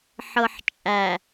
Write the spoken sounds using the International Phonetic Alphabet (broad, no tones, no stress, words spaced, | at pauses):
ħɤħt͡ʃʼæ